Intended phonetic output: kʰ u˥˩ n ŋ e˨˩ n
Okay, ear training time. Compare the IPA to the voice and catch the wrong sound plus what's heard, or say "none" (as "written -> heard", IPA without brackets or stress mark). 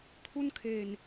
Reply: ŋ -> kʰ